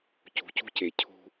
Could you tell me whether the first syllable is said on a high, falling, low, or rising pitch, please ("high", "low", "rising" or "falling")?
low